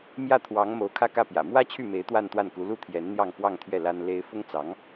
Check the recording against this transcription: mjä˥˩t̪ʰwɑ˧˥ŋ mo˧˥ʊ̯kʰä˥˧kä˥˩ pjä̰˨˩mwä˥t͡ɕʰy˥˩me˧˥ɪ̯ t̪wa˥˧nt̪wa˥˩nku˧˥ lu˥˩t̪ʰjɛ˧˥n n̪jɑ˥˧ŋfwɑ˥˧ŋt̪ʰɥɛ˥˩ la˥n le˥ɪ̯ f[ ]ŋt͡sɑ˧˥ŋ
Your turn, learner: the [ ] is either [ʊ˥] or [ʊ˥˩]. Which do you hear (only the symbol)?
ʊ˥